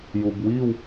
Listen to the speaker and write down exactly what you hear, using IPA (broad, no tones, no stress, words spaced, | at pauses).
jubwiw